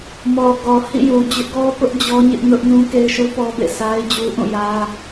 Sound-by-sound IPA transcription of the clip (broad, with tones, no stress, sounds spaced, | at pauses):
m ɔ˨ ɡ ɔ˨ h ḭ˦˨ j u˨ d͡ʑ ʊ˦ ʔ ɡ ɔ˦ p ʊ˦ ʔ d͡ʑ ɔ˦ ɲ ɪ˦ ʔ n ʊ˦ ʔ n ũ˦ k e˦ ɪ̯ ʃ u˦ p ɔ˦ b ḛ˦˨ sʰ a˦ ɪ̯ d͡ʑ u˦ ʔ ũ˦˨ j ä˦